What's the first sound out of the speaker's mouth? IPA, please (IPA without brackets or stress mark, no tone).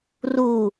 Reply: r